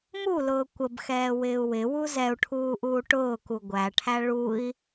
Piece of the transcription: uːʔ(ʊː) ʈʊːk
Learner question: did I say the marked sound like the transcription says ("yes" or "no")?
no